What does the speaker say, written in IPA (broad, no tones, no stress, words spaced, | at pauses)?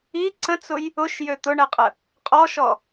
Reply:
i ǀə̃t͡sʊj | ʊʃjø t̪ʊɳɛqʼə | qʼɔʃɔ